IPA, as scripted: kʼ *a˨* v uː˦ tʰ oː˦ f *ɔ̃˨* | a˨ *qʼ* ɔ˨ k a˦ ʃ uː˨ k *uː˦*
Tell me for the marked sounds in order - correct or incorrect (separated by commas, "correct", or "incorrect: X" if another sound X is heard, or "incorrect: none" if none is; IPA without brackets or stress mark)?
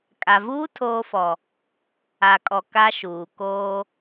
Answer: correct, incorrect: ɔ˨, incorrect: kʼ, incorrect: oː˦